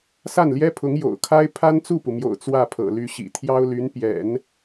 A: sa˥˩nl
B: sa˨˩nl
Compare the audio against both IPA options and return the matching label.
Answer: A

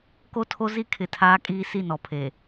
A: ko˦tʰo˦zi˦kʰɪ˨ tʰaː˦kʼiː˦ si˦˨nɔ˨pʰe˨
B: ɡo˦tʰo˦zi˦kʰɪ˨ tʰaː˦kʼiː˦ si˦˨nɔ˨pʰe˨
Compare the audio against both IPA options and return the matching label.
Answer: A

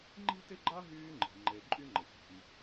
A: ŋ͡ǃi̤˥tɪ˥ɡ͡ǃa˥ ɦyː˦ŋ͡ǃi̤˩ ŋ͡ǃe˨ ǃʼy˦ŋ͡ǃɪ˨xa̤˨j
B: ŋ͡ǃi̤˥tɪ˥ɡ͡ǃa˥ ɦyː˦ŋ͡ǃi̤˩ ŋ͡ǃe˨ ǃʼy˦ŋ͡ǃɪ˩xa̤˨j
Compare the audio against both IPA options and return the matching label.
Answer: B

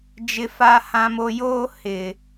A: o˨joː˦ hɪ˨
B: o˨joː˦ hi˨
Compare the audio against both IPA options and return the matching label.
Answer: A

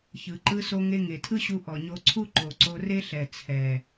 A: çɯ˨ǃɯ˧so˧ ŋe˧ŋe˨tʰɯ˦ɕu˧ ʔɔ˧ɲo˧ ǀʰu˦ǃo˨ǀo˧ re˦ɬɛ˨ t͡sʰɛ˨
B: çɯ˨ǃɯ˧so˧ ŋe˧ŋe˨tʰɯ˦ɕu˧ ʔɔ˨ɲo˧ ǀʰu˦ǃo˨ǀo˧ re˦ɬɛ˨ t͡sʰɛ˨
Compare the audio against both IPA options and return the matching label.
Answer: B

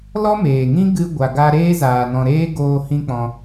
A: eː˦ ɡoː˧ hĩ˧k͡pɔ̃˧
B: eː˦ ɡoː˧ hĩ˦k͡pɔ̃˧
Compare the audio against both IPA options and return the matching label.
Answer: B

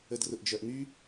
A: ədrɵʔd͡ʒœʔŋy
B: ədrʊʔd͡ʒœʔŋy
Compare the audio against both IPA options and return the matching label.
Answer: B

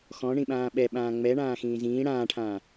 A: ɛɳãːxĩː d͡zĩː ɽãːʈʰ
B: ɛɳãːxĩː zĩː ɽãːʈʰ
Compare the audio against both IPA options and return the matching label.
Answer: B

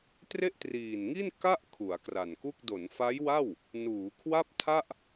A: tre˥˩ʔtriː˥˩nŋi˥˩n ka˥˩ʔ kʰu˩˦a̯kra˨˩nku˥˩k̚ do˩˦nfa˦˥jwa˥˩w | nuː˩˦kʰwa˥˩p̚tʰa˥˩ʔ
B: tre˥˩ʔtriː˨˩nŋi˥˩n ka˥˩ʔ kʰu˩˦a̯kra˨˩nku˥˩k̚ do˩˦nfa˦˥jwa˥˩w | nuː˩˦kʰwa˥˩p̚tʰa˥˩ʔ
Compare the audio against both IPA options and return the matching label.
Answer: B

